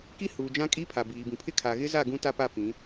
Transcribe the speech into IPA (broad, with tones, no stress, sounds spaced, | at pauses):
k i˦ h uː˨ d͡ʒ ã˦ kʼ i˦ pʰ a˨ b iː˨ b ĩ˨ pʰ ɪ˦ kʰ a˨ ɣ ɪ˦ z a˦˨ ɡ ũ˦ t a˦ p a˦˨ p ĩ˨˦